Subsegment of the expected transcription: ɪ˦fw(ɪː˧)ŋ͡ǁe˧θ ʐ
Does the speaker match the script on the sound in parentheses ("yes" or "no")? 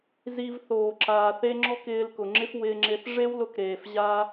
yes